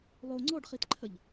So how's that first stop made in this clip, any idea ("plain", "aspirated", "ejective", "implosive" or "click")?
click